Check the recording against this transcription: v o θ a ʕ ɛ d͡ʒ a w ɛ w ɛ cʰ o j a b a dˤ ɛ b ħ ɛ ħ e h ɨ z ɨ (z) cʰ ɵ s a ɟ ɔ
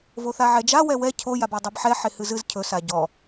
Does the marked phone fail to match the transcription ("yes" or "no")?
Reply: no